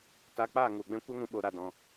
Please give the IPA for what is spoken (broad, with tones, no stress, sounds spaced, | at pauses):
t a˧ k͡p aː˦˨ ŋ u˨ ɡ͡b ɛ̃˦ kʷ ɛ˦ ŋ ũ˧ ɓ o˧ ɾ a˧ d ɔ̃˧